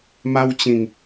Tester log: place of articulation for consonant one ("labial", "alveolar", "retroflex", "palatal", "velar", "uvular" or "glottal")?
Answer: labial